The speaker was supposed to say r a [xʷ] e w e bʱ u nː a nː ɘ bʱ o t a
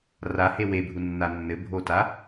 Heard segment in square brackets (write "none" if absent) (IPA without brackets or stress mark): h